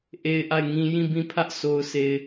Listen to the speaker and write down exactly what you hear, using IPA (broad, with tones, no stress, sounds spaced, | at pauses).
ʔ e˦ ɪ̯ ʔ a˦˨ ɪ̯ ŋ ĩ˦ j ĩ˦˨ b ĩ˦˨ pʰ ä˦ ʔ s o˨ ʊ̯ sʰ e˨ ɪ̯